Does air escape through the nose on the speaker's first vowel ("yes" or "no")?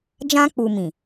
yes